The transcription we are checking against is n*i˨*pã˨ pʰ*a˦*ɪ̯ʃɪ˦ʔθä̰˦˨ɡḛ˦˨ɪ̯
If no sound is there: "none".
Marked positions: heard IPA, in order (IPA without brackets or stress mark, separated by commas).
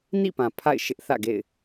ḭ˦˨, a̰˦˨